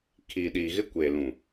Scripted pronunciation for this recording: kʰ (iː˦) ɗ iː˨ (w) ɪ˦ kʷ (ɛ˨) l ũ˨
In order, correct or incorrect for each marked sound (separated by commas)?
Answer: incorrect, incorrect, incorrect